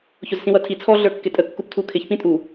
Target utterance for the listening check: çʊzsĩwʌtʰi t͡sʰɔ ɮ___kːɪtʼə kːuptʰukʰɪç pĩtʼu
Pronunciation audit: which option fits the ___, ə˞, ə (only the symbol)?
ə˞